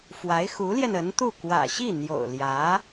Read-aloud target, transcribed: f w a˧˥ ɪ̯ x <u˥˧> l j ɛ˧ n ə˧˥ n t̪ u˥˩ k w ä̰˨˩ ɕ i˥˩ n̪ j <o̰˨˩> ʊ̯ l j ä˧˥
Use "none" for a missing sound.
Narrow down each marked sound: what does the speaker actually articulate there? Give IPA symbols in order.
u˧˥, o̰˨˩

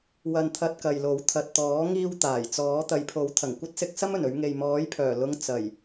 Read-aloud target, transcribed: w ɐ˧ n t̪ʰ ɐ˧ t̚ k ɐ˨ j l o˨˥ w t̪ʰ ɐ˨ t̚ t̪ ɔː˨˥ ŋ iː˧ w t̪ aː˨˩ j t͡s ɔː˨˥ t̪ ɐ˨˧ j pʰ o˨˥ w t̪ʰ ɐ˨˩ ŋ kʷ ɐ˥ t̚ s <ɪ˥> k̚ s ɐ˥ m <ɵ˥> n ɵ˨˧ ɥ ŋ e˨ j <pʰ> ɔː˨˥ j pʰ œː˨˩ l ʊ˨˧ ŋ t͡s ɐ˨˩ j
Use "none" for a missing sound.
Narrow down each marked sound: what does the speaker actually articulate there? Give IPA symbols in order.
ɪ˨˥, ɵ˨˩, m

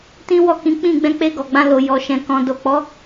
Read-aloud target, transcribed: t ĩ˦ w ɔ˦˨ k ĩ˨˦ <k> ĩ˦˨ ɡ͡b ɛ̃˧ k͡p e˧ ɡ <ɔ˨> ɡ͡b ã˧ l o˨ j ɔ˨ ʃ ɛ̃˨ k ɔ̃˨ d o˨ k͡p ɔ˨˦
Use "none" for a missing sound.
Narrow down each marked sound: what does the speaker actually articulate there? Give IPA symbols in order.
k͡p, ɔ˨

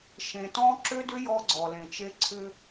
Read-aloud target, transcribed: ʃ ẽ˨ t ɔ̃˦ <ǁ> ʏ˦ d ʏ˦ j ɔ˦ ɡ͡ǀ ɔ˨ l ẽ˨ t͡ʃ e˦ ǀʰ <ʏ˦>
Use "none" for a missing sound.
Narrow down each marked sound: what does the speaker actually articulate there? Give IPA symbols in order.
ǁ, ʏ˦

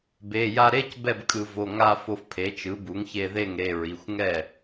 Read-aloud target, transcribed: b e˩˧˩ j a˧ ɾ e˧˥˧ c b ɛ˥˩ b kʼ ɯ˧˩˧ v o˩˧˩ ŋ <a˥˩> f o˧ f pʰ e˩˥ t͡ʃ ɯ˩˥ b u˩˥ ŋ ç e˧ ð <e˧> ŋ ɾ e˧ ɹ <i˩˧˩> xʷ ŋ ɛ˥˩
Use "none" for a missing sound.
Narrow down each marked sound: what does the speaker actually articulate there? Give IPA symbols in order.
a˧, e˥˩, i˩˧˩

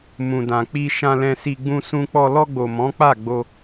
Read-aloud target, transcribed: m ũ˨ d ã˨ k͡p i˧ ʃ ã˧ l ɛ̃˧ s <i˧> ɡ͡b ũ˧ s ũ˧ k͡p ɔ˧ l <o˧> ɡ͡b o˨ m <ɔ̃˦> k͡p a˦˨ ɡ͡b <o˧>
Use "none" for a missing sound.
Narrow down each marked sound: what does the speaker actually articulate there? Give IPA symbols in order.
i˧, ɔ˧, ɔ̃˨˦, o˧

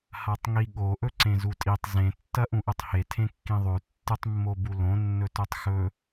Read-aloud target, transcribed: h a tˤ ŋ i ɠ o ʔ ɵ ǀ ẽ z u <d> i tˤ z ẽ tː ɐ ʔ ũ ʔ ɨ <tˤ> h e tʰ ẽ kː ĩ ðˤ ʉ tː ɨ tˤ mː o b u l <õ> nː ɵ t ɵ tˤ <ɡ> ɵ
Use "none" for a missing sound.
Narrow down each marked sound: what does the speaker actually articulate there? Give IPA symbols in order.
tʼ, tˤ, õ, x

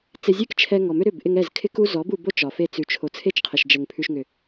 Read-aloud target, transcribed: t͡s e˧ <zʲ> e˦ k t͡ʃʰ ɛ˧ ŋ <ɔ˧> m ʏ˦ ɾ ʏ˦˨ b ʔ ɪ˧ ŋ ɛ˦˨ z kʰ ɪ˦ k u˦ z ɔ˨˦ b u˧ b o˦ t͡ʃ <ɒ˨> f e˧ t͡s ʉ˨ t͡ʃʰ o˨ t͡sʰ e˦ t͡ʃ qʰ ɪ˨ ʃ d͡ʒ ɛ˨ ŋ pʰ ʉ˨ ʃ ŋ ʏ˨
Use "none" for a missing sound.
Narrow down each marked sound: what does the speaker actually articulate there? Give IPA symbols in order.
zʲ, ɔ˨, ɒ˨

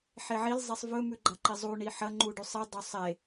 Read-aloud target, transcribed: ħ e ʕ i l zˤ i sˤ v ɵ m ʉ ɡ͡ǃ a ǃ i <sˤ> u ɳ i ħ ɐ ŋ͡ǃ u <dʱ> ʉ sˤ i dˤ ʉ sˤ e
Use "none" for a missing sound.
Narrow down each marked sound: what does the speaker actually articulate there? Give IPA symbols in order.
zˤ, ɖ

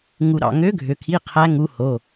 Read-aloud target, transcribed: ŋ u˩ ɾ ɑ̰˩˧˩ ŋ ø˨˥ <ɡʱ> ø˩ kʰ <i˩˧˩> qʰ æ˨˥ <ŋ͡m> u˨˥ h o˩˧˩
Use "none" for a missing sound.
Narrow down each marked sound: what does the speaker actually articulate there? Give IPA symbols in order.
ɡʱ, i˩˧˩, ŋ

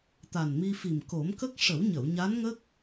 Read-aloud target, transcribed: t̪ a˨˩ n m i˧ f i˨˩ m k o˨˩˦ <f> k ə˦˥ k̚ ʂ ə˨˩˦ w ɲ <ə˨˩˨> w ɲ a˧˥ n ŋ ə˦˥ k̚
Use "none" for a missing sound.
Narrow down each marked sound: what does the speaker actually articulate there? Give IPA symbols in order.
m, ə˨˩˨

